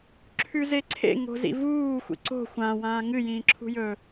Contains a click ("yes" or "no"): yes